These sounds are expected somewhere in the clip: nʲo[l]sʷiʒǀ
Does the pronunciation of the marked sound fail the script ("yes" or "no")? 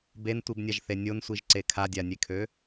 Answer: yes